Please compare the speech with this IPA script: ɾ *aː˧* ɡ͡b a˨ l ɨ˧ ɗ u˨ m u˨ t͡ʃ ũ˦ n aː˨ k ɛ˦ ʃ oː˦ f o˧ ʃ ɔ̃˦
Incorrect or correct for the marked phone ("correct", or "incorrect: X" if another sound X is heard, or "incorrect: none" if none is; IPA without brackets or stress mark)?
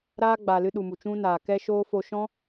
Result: incorrect: aː˦